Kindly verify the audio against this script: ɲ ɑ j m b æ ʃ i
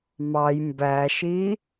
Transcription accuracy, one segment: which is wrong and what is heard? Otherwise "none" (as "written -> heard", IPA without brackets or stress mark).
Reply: ɲ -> m